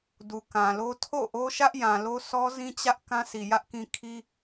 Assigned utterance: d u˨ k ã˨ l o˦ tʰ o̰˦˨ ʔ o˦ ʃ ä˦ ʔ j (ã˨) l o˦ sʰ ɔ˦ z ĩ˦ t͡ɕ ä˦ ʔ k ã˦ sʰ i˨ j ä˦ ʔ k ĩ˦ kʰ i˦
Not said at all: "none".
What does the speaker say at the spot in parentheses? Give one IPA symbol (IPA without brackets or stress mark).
ã˨